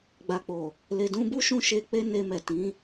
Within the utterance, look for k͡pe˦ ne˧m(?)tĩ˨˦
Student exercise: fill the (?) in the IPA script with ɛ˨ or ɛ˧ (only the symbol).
ɛ˨